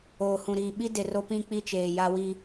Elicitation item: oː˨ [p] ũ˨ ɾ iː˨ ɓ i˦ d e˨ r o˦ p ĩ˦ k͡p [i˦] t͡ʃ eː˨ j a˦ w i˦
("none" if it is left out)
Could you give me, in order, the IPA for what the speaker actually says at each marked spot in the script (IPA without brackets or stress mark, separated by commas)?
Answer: h, i˦